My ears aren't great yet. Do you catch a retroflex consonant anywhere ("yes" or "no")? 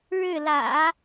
yes